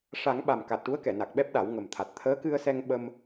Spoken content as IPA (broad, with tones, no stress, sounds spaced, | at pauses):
ʂ a˨˩˦ ŋ ɓ a˨˩ m k a˨˩ t̚ ʈ u˧˥ ə̯ k ɛ˨˩˨ n a˨˩ k̚ ɓ ɛ˦˥ p̚ ɗ a˨˩˦ w ŋ ə˨˩ m t̪ʰ a˨˩ t̚ t̪ʰ əː˧˥ k ɨ˧ ə̯ s ɛ˧ ŋ ɓ ə˧ m